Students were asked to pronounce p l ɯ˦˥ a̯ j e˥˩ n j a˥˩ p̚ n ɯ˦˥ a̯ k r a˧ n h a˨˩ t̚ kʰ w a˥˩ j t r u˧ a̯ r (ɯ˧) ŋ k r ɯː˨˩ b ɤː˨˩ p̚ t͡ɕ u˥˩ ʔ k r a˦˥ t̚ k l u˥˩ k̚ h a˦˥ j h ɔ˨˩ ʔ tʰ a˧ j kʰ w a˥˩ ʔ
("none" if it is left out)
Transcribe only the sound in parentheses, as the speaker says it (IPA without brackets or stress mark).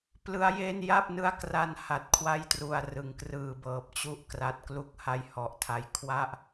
ɯ˨˩